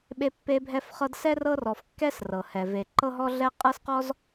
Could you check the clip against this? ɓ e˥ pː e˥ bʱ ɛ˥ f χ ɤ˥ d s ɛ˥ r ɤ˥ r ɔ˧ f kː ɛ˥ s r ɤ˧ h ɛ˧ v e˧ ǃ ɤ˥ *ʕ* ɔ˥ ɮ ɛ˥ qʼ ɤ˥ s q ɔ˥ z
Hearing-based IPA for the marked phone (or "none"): ɦ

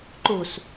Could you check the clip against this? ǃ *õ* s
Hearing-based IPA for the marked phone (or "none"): o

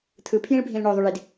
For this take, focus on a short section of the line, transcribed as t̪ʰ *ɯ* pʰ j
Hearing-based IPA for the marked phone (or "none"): ɯ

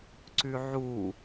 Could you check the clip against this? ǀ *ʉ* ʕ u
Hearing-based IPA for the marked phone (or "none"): ʉ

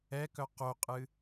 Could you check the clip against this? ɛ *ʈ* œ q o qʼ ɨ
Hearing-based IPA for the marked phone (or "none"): k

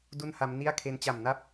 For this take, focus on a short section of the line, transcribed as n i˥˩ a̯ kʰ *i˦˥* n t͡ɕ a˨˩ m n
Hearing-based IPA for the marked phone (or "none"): e˦˥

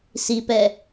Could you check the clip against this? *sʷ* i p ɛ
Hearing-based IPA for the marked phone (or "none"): s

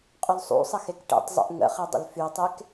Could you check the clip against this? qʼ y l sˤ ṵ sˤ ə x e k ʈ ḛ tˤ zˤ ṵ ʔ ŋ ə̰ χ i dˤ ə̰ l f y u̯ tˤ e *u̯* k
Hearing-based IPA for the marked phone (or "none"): none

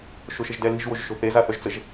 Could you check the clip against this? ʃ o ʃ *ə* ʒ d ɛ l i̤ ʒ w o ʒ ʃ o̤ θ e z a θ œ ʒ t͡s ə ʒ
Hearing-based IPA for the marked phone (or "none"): ə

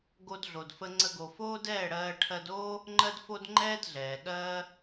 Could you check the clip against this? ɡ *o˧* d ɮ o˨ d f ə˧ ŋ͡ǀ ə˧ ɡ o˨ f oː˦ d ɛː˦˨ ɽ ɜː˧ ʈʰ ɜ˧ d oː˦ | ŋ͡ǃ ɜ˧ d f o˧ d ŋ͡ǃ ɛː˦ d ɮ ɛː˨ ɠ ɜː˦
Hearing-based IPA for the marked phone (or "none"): o˧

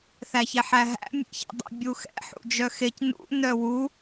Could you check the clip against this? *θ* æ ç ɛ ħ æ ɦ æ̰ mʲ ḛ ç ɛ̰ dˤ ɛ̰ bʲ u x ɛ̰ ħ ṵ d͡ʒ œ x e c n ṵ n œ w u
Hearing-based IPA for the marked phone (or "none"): θ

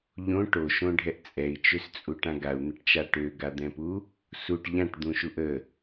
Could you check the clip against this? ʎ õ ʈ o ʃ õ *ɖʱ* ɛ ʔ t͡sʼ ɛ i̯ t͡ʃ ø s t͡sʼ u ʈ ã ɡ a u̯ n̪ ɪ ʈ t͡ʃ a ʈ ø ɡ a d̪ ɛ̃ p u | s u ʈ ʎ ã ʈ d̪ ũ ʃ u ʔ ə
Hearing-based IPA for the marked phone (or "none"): ɖʱ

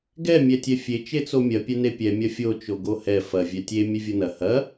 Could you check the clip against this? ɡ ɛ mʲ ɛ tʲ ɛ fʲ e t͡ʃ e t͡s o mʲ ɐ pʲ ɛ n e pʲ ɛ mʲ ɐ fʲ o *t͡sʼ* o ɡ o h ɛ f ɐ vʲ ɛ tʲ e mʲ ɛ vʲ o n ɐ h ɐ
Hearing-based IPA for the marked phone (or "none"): t͡ʃ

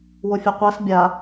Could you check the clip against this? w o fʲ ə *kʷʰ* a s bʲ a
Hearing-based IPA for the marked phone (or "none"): qʷ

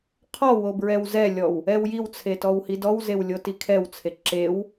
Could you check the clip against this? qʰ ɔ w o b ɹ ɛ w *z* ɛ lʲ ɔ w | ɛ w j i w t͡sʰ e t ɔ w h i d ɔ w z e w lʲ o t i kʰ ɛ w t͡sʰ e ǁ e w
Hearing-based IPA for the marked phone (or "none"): z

